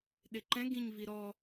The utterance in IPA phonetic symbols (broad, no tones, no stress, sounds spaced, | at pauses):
ɗ ɪ ǃ ɛ̃ ɡ ĩ ɲ v i ɾ ɔ